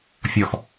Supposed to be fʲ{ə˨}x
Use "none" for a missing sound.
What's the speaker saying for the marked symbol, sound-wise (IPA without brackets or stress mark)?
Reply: ɔ˨